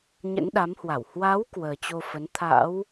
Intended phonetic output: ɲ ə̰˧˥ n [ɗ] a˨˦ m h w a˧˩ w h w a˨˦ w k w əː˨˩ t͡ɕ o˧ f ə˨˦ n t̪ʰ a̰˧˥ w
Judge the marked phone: correct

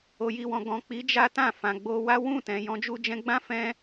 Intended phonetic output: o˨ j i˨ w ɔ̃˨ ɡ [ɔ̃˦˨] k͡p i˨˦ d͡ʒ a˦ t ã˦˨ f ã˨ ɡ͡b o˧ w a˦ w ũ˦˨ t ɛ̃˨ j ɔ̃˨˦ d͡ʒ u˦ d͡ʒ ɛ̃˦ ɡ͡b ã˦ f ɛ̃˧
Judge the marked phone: incorrect: ɔ̃˨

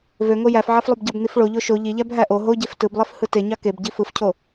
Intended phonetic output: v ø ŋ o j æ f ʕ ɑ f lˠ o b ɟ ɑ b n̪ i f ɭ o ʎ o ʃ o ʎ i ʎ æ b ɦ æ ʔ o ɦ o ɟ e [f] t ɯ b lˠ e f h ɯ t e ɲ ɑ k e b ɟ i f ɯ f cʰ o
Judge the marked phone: correct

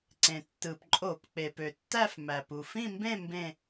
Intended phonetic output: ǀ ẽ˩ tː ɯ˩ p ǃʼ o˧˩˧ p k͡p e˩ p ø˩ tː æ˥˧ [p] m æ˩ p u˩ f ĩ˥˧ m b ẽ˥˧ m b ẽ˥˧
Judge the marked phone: incorrect: f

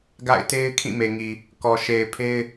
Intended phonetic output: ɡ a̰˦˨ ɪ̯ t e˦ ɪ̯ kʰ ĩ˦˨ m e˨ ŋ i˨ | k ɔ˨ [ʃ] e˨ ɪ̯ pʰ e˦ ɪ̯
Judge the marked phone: correct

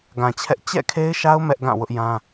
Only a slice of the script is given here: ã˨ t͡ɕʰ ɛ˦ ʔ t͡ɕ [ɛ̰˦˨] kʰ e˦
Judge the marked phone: correct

